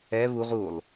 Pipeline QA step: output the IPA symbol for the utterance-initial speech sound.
ɛ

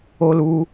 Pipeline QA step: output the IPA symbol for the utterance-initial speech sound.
o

